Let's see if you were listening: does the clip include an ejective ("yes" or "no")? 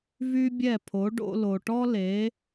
no